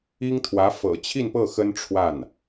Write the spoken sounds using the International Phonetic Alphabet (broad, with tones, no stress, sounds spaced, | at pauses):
i˥ ŋ t̪ʰ w ä˧˥ f ɤ̰˨˩ t͡ɕʰ i˥˧ n p ɤ˥˩ x ə˥ n ʈ͡ʂʰ w a˥˩ n